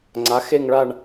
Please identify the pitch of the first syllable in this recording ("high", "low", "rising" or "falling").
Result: rising